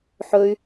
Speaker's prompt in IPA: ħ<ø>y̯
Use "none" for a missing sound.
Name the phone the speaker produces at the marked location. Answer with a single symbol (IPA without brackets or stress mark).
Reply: ɵ